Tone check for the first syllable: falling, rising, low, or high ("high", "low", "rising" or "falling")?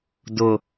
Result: low